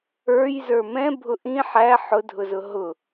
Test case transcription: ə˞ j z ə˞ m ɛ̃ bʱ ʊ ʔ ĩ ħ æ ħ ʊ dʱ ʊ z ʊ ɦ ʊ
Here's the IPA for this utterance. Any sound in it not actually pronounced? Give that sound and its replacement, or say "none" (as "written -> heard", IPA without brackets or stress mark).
none